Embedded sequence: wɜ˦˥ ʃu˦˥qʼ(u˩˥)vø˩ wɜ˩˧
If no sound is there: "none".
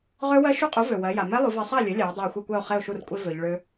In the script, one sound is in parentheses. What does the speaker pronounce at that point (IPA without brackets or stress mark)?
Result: u˩˥